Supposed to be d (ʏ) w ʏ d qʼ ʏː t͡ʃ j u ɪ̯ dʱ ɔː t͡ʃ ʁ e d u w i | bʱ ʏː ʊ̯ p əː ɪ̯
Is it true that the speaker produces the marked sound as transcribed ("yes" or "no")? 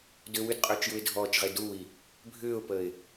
yes